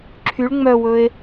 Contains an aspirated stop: yes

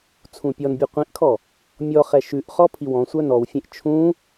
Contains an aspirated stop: yes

